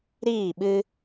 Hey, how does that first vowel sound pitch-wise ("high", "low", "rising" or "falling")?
falling